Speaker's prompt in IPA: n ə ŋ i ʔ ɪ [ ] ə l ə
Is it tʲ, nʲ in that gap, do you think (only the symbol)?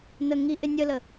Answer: nʲ